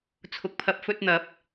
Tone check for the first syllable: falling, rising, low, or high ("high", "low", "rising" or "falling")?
rising